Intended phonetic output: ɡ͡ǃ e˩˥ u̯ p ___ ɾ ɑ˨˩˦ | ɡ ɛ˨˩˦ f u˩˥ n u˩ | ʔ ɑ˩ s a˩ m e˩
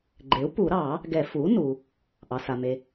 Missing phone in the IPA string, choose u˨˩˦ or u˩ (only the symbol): u˨˩˦